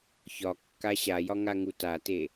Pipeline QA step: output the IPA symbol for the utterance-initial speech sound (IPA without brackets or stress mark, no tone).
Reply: ç